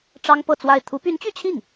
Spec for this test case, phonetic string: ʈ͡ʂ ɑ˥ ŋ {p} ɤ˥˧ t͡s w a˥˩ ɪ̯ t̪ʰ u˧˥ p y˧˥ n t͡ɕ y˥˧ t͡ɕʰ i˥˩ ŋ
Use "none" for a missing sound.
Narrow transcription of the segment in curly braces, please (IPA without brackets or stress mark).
p